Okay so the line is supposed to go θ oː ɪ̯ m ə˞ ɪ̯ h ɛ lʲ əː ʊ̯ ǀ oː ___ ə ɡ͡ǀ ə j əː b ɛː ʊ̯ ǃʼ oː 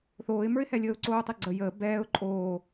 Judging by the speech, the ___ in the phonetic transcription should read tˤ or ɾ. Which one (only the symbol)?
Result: tˤ